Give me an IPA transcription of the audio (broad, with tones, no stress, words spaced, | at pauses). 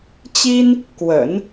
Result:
t͡ɕi˥n | kwə̰˨˩˦n